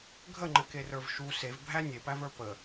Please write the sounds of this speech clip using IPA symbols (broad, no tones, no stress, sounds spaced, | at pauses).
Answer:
ɡʱ ə ŋ͡ǃ ɘ k e r ə˞ v ʃ u s e v bʱ æ nʲ e p æ v ə˞ p ə